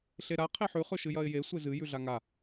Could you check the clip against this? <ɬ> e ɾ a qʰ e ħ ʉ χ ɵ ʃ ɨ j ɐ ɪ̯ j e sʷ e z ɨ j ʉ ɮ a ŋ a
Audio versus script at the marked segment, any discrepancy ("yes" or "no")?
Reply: no